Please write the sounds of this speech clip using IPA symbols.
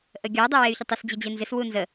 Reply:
ʔəɡʲɔ dˤewey̯çətˤɪs d͡ʑɪd͡ʑenzɪs wunzə

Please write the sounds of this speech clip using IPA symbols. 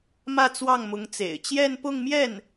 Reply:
mä˥˧t͡swɑ˥˩ŋmʊ˧˥ŋt͡sḛ˨˩ɪ̯ t͡ɕjɛ˥˧npʊ˥˧ŋmjɛ˥˩n

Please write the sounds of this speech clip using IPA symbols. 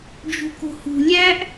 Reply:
d͡ʒṳko̤hṳ lʲæʔ

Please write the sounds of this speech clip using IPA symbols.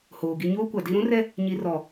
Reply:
hoː˨ɡi˦ ɲoː˦kʷa˨di˦ ɾũ˦rɛ˦ | ɲi˨rɔ˨

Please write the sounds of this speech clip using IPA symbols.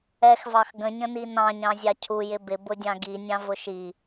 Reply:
ɛxvɑx ɡə̃ɲə̃ni nɑ̃ɲɑ̃zʲɑ cʰujɪ bɪbʊdʲɑ̃ ɡinʲɑ̃vʊ ʃi

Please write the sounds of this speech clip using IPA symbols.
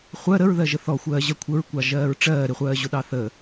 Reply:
χʷɜ ɾəɹðɜ ʒəθɔxʷɜːʑɜ kʷʰəɹkʷɑ ʒɜːɹʈ͡ʂɜː ɾɪχʷɜːʑʊɗɑ θə

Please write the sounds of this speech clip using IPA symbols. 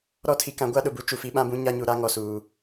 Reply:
ɾɔ˦tʰi˨ kã˨˦ɡʷa˦ɗʊ˨bu˦ t͡ʃu˨ fi˦ɓã˦bũ˦ ɲa˦ɲu˨ɾa˦ ŋɔ˨suː˨

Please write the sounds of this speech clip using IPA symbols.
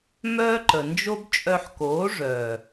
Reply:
mœː˦ǃə˨ nd͡ʒo˦bt͡ʃʼœ˧ħkoː˨˦ ʐœː˨

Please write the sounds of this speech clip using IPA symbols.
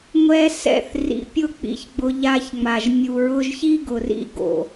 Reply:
ŋʷɛ˧ sɛ̰˧θ rḭ˨pʲʊ˦˨ k͡pḭ˧çɡ͡bʊ˧ ʎa˧çŋ͡ma˨ʒ mʲu˨ɹʊ˧ʒçi˦ɡʊ˨r ḭ˦˨ɡo̰˨

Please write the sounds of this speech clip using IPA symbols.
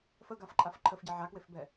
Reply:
fəɡafǃʼaf ǃʰəfɟɛ ʕakwefbɛ

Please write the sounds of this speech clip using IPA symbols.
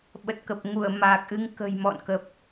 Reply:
ɓə˨˩t̚kə˨˩p̚ ŋu˧˩ə̯maː˨˩k̚ʔɨ˧ŋ kə̤˨˩jmɔ̰˧˨nkə˨˩p̚

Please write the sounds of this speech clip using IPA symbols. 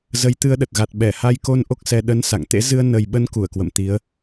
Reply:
zə˨˦jt̪ɨ˧ə̯ɗə˨˩t̚ɣa˨˩t̚ ɓɛ˧˩ha˧jko˧n ʔo˦˥k̚sɛ˧ ɗə˨˦n sa̰˧˨ŋt̪ḛ˧˥ zɨ˧ə̯ nə˨˩jɓə˨˦n ku˧˩ə̯kwə̰˧˨mt̪i˨˦ə̯

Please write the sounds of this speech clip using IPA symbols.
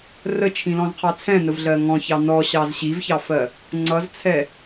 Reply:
rət͡ʃʰĩlɔ̃zqʰɑ t͡sʰɛ̃nəvɮɜ ŋɔ̃çɑ nɔɕɑz ɕivçɑfɜ | ŋ͡ǀʌzt͡sʰɛ

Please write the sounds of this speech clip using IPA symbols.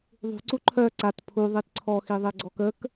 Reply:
ðˤṳ ǀuǃʰœ ǀat pʰu ðˤitǀʰɔxi ðˤeɡ͡ǀɔkək

